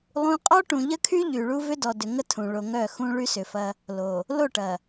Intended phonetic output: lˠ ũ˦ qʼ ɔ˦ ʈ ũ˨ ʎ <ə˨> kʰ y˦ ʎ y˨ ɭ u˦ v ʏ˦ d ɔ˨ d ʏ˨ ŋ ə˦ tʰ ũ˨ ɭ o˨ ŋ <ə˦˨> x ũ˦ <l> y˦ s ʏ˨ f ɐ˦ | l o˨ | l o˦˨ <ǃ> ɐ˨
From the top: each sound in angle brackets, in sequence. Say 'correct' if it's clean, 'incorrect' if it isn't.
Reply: incorrect, incorrect, incorrect, incorrect

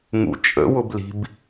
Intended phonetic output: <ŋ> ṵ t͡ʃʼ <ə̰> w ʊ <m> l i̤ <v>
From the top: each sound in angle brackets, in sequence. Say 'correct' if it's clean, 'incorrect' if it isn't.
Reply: correct, correct, incorrect, incorrect

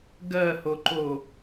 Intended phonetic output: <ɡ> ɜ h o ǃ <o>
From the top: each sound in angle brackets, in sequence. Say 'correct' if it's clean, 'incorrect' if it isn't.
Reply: correct, correct

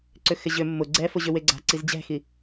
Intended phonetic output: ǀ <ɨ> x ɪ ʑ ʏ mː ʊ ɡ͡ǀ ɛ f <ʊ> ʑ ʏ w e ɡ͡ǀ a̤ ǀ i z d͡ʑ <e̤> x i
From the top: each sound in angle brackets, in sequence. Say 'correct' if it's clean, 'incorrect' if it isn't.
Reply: incorrect, correct, incorrect

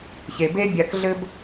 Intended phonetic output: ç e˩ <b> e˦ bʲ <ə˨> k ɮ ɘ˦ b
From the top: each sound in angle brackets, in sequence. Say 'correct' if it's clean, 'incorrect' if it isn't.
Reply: correct, incorrect

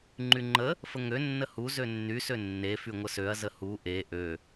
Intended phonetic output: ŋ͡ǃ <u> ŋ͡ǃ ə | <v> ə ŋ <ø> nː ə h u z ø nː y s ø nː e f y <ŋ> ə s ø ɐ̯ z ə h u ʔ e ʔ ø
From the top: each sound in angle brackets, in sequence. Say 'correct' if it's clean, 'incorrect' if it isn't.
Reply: incorrect, incorrect, correct, incorrect

